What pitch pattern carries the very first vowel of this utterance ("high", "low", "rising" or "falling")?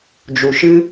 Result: low